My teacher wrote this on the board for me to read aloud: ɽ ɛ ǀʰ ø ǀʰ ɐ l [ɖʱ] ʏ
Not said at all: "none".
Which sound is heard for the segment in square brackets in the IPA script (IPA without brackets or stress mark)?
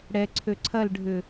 ɖʱ